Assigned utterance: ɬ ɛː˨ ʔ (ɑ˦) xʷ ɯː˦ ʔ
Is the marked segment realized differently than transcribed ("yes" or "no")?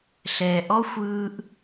yes